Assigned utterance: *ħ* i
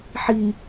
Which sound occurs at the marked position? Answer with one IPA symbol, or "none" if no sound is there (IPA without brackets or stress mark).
ħ